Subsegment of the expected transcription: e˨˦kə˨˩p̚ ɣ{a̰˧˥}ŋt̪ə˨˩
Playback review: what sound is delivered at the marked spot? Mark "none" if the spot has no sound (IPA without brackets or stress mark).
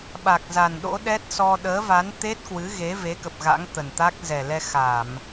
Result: a̰˧˥